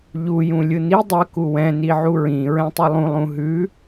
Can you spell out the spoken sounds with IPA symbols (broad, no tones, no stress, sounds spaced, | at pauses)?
ʎ u j ũ lʲ ɯ n i dˤ ə k u w ɛ̃ n i ʕ u ɹ ĩ ɹ ɛ̃ tˤ ʉ lˠ ũ lˠ ũ ɦ ʉ